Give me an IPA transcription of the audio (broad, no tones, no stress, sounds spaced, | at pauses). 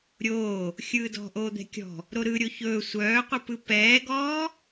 ɾʲ oː | xʲ ɯː d ɔ̤ ʔ oː d̪ ɛ̤ kʲ ɔ̤ | ɾ o ɾ ɯ ɾʲ o ç ɵː sʷ œː qʷ ɯ p ɯ p ɛː ɡ ɔː